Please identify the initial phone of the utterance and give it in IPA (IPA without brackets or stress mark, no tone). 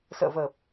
s